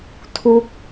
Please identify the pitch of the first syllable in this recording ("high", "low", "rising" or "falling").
falling